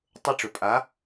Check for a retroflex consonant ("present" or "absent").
present